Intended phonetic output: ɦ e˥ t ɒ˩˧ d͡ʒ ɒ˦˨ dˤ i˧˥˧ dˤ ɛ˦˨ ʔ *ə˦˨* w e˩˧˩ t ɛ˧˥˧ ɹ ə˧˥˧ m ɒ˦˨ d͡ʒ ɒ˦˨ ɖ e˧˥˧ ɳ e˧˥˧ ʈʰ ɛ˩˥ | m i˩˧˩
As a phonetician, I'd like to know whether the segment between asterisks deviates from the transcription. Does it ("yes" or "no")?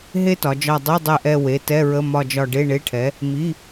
yes